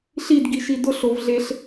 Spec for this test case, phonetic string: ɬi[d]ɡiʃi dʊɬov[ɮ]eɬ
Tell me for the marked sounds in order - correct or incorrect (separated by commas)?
correct, correct